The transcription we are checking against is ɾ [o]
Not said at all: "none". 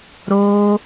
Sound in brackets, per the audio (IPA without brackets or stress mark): o